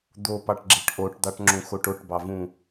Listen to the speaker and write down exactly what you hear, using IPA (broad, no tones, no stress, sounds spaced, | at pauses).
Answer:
d̪ o p ɑ ʈ ɡ͡ǁ e ʈ ʔ o ʈ d̪ ɑ ʈ ŋ͡ǁ ũ x o ʈ o ʈ b ɑ v ũ